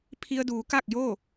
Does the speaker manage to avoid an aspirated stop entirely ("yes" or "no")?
no